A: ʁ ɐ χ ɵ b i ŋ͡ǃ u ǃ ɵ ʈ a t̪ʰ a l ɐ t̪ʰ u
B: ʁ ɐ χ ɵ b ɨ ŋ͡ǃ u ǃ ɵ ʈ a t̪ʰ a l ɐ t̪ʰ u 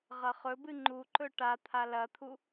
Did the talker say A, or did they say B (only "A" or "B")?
B